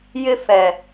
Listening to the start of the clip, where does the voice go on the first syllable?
high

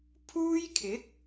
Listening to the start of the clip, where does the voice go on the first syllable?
high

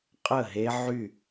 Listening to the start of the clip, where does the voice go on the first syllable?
falling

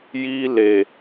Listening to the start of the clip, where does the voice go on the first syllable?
high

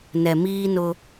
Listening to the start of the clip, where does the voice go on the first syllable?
low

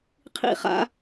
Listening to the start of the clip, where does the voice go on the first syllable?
falling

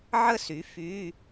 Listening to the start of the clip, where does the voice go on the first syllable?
falling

